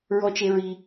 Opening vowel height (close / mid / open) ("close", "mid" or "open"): mid